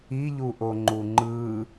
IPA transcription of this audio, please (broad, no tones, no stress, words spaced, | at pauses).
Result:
iʎuʔo ŋ͡ǃuŋ͡ǃɯ